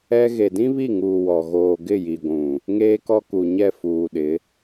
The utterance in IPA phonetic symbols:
ɛ˦ ɣe˨dĩ˦βi˦˨ŋuː˨ wɔ˨ɣoː˨ ɡɪ˦˨ji˨ɡʷũ˨ | ŋeː˦kɔ˦ku˨ɲɛ˦˨ fuː˨ɗɪ˨˦

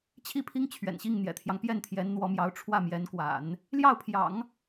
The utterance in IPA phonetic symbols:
t͡ɕʰi˥˩pʰi˥ŋ t͡ɕʰɥɛ̰˨˩nɕi˥˩ŋ n̪jɛ̰˨˩t̪ʰjɑ˦ŋ pjɛ˥˩nt̪ʰjɛ˧˥nn̪wɔ˧˥mjɑ˧˥ʊ̯ ʈ͡ʂʰwä˥˩mjɛ˧˥nkwa̰˨˩˦n | ljɑ˥˩ʊ̯pʰjɑ̰˨˩˦ŋ

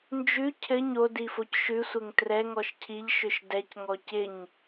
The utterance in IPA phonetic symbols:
nd͡ʒʉ cʰɘ ɲodifoc ʃʉsʷɘŋ trɛŋɔʃ cʰiʎʃʏʃ dɛcŋɔ cɪɲ

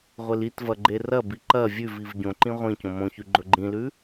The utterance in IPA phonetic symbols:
ʁʷelitvɐ ɡ͡ǃerɐbi ǃɐ vʲʉviv ɟõǃĩ ʁʷĩ cõmõçʉ ɡ͡ǃɵɡ͡ǃĩlʉ

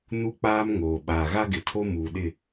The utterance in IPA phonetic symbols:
nu˦k͡paː˦mŋoː˨ ɓaː˨ɣa˦ɡɪ˨tʰo˦ muː˨ɗɪ˦˨

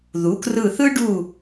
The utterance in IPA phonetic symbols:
ðu˩˥krɯ˦˨ θɯ˥ɖu˦˨

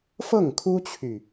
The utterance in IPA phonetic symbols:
fɤ˥˩ŋkʰu˥t͡ɕʰy˨

